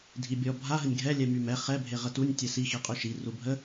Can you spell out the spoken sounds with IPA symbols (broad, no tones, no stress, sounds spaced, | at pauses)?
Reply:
dʱ i bʲ ɔ bʱ a ɦ ə nʲ ɡʱ ɛ lʲ ɛ m y m ɛ χ ɛ bʱ e ʁ ə t u nʲ tʲ ɛ s i x i qʼ y ʃ i r u bʱ ə